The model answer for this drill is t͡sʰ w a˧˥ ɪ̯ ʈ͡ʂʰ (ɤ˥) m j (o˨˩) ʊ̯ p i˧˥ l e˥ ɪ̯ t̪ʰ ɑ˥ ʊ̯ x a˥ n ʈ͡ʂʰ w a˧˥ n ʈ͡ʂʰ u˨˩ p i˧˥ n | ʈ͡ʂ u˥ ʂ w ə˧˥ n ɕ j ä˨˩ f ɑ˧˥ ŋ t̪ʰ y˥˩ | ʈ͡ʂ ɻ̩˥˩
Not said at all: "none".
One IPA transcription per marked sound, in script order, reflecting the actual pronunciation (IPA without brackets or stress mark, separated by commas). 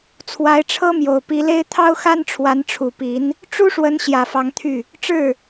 ɤ˥, o˨˩